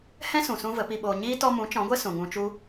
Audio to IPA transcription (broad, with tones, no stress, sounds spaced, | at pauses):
h ɛ̃˦ s ũ˨ s ũ˦ v ə˨˦ p i˧ ɓ oː˧ ɲ iː˦ t ɔ˧ m ũ˨˦ t͡ʃ ɔ̃˨˦ ɡʷ ɛ˦ s ũ˨ ŋ ũ˧ t͡ʃ u˦